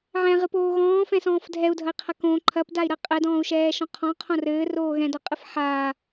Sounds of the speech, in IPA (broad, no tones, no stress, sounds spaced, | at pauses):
ʕ ɛ̃ ʁ ɨ p oː ɣ ɔ̃ː f ɛ̃ s ɔ̃ː f dʱ ɛ u̯ dʱ ɐ i̯ qʰ ɐ k õ ǃʰ ɐ p d a i̯ ɾ ɐ qʼ ɛ d ɔ̃ː u̯ ʃ ɛː ʃ ɔ̃ qʰ ɔ̃ qʰ õ r ɘː r oː ɣ ɛ̃ d ɔ qʼ ɨ f ħ aː